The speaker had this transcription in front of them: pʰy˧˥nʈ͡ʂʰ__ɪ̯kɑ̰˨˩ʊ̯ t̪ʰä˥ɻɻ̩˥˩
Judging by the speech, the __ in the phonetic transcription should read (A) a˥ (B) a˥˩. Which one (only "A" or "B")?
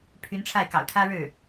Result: B